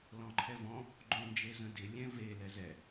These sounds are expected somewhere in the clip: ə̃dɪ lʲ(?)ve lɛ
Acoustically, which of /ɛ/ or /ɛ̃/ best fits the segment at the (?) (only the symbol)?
ɛ̃